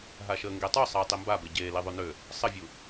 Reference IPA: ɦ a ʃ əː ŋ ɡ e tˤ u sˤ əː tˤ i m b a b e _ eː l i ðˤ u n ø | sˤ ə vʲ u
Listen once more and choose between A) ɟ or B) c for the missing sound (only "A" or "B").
A